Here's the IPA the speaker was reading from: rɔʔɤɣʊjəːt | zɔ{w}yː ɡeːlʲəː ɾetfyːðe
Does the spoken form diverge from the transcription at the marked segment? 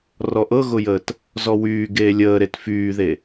no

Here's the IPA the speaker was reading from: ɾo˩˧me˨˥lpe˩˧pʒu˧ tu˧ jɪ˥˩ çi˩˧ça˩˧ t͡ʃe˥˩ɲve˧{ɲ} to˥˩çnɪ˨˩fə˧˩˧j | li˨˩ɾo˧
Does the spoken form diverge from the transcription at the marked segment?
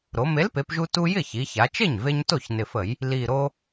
no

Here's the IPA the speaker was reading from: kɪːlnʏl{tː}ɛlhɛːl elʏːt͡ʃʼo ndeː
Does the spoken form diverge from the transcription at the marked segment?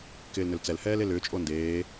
yes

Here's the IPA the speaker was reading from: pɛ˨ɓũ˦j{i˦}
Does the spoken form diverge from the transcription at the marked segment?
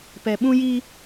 no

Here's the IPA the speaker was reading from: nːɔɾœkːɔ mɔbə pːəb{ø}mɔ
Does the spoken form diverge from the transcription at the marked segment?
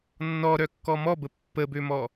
no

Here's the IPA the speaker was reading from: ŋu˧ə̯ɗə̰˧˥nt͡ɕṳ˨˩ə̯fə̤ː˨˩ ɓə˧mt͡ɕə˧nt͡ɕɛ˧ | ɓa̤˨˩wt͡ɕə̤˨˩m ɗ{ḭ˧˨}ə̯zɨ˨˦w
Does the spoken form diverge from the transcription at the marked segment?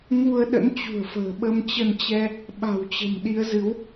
yes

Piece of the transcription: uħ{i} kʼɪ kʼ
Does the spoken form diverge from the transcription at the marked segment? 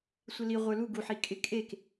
no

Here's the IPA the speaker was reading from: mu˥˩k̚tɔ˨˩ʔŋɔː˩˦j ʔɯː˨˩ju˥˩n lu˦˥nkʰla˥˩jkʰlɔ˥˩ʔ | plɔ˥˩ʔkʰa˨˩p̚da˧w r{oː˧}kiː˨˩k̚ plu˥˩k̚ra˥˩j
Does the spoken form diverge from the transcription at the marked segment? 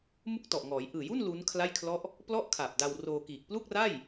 no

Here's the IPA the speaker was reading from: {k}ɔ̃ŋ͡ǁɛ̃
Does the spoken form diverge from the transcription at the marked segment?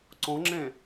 yes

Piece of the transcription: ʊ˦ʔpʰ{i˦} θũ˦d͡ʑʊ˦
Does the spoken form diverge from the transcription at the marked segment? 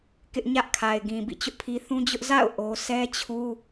no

